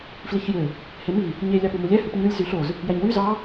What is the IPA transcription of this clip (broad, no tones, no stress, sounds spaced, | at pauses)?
f l i ç j ø | h e m i | ɲ e lʲ ɑ p u m u lʲ æ h ɯ p ɲ ɯ lʲ z y ɬ o z | j æ ɲ w y z ɑ